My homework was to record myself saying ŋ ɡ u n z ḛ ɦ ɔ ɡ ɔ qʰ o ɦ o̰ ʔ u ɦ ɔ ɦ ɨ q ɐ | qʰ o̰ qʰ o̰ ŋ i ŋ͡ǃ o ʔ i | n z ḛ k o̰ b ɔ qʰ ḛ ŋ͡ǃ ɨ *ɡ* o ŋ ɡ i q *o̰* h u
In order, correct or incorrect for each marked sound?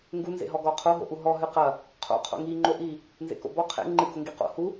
correct, correct

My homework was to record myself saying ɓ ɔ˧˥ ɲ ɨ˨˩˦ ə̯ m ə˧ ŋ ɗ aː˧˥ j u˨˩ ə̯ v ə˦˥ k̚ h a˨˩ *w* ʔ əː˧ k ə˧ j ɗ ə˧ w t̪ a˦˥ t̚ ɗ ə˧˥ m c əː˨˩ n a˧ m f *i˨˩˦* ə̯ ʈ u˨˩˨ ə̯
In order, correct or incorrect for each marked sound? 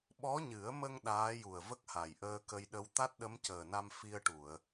incorrect: j, incorrect: i˧

